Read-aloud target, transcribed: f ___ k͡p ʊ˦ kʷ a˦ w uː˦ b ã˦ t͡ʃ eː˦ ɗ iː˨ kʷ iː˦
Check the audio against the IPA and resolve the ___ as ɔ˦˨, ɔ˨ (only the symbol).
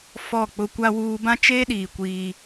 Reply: ɔ˦˨